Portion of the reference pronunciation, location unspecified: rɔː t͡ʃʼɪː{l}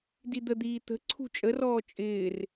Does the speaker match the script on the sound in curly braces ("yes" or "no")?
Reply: no